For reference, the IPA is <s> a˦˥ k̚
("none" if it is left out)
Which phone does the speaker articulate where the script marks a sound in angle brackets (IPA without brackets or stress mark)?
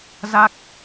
z